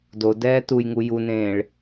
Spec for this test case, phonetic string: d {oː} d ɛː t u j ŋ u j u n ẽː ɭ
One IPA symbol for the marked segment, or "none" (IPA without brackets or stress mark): o